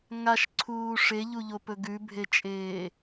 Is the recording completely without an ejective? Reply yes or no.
no